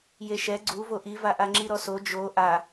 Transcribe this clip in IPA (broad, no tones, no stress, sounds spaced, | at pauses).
j e ʃ ɛ ɡ͡ǀ u v o ʔ i v a ʔ a ŋ͡ǁ i ɾ ɔ s o d͡ʒ o ʔ a